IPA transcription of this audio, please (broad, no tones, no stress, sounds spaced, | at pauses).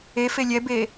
e f e lʲ ɛ b e